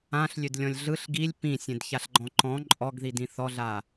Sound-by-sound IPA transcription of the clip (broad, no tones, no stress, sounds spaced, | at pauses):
ã ɬ lʲ ø d lʲ ɔ̃ lʲ ɮ ɯ ɬ ɡ i lʲ p ĩ sʲ ẽ d ç a ɬ ɡ͡ǃ ɔ̃ ǃ ɔ̃ ǃʼ ɔ ɡ ð i d ĩ θ ɔ ɮ a